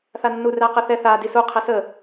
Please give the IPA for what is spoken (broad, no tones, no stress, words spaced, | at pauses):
θanːu ræqəθɛ θa disu qʰɛsə